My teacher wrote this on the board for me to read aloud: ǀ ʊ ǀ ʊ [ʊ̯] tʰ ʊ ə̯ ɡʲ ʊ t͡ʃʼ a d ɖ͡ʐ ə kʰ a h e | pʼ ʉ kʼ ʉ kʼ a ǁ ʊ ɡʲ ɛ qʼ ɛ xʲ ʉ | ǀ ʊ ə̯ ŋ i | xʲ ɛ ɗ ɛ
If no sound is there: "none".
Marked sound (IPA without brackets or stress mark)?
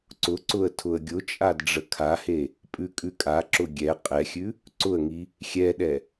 ə̯